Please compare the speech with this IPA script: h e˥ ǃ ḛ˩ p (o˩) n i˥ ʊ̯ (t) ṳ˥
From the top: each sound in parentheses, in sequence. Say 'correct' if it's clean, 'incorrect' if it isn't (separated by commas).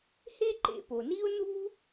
correct, incorrect